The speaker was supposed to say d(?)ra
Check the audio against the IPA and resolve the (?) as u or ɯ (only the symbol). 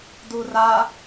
u